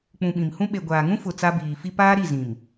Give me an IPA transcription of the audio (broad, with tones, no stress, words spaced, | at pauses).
k͡pũ˨ɓĩ˨mhũ˦ ɓe˨ɡʷaː˨ŋũ˦fʊ˨ t͡sa˦biː˨ fi˦ paː˦ ɾi˦˨zĩ˨m